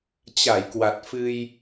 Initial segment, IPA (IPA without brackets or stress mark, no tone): t͡ɕ